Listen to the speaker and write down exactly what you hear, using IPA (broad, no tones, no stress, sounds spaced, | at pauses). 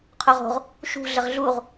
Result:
qʰ o ʁ o̤ ʁ | ʃ ṳ ɮ ə ʁ ɮ u ʁ